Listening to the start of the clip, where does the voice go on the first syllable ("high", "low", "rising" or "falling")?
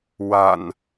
low